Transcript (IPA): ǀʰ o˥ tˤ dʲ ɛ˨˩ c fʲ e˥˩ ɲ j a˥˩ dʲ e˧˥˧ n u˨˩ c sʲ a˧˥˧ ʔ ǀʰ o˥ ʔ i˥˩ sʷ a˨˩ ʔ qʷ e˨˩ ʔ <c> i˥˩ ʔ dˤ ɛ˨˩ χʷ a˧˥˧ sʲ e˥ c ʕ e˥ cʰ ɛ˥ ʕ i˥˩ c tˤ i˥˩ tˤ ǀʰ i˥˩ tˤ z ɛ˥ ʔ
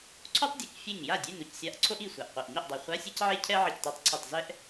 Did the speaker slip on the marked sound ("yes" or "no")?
yes